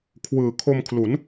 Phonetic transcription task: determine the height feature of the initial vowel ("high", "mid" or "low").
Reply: high